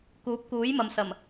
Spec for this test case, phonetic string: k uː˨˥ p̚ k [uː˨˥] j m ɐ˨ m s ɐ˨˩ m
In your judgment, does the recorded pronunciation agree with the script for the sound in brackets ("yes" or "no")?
yes